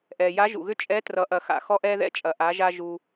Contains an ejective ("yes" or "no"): yes